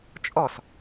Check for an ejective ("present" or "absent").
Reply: present